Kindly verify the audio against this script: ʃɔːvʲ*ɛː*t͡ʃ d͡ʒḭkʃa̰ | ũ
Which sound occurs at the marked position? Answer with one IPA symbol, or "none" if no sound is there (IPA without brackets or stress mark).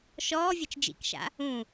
ɛ